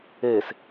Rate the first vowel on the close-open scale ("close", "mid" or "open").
mid